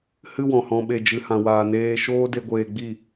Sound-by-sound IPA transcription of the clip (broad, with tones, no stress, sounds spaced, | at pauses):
h ɨ˦ w ɔ̃˨ h ɔ̃˧ ɓ e˧ d͡ʒ ɨ˨ h ã˨ w aː˨ n eː˧ ʃ oː˦ d e˧ ɡʷ eː˧ ɡ͡b i˦˨